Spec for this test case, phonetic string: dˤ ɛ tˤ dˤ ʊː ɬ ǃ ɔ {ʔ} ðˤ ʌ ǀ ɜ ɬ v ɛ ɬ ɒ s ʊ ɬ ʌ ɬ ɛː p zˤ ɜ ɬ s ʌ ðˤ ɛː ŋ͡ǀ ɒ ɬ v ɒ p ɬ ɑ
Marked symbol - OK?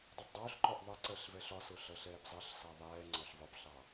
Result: yes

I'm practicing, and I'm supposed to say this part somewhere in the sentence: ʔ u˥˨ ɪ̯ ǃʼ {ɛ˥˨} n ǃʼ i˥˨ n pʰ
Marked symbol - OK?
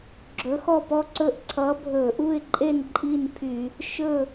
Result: no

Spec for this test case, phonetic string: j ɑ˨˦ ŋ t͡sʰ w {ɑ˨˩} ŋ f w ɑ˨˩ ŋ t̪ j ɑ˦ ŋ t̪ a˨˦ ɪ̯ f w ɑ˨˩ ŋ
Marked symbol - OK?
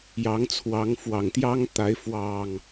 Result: no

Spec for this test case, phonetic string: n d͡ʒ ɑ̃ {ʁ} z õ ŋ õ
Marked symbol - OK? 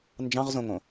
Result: yes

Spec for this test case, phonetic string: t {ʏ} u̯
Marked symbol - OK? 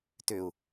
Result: yes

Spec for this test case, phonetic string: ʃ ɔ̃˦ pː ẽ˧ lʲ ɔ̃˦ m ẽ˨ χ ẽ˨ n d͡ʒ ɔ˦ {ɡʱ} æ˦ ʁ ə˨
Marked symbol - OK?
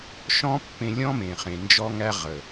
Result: no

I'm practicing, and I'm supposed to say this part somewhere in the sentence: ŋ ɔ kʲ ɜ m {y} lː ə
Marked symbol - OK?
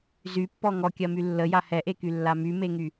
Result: yes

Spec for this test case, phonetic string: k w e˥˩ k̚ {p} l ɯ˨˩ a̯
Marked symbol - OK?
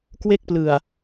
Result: yes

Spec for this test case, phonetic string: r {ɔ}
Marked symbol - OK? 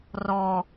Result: yes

